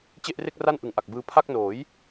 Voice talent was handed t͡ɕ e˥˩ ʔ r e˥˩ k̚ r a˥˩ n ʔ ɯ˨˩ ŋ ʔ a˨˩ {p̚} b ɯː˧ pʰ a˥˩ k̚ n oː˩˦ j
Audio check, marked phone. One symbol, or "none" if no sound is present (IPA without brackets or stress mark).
k̚